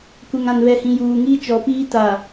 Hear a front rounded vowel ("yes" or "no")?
no